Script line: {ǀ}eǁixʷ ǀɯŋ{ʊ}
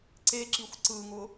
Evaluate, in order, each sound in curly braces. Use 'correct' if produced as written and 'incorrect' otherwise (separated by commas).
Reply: correct, correct